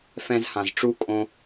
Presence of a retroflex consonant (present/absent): present